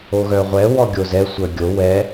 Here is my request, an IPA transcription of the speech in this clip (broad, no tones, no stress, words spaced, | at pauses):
oɣœʁʷɛ wɔɡʲozɛ sʷœɡʲo wɛ